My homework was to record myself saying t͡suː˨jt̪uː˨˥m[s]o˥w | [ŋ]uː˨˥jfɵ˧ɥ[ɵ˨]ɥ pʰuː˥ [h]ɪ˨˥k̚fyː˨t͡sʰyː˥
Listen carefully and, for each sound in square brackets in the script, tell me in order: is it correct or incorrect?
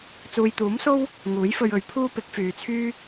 correct, correct, incorrect, incorrect

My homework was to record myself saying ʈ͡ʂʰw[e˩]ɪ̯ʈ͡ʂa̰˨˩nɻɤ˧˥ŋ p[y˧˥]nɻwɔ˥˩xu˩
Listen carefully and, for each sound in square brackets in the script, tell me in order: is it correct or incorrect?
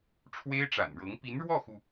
incorrect, incorrect

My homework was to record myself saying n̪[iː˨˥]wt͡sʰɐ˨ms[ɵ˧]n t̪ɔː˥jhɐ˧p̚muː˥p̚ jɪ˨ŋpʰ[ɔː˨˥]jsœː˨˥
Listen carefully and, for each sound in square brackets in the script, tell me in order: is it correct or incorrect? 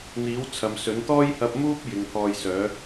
correct, incorrect, incorrect

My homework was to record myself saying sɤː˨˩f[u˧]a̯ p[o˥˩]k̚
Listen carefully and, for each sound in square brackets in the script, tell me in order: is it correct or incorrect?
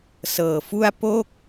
incorrect, correct

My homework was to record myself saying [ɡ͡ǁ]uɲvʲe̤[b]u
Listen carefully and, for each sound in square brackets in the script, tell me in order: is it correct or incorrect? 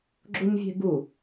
correct, correct

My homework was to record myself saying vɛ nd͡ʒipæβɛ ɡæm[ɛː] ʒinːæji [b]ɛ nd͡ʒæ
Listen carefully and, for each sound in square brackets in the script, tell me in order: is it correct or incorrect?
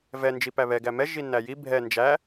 incorrect, incorrect

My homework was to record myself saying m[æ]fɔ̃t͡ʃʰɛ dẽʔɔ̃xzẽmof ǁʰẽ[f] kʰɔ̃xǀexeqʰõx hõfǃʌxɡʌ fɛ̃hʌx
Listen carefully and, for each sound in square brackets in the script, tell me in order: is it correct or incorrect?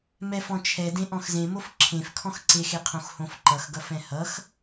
incorrect, correct

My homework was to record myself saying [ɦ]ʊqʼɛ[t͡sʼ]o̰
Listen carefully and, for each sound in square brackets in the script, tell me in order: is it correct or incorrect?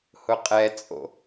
incorrect, correct

